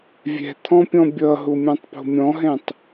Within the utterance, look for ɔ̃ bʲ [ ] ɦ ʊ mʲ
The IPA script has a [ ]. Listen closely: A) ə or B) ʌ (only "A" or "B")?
B